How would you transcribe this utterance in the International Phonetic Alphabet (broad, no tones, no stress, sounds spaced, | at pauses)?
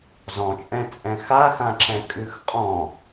z ɔ̃ t͡ʃʼ ɛ̃ t͡sʼ ɛ̃ x a x ã ǁ ɛ̃ kʼ ʉ x qʼ ɔ̃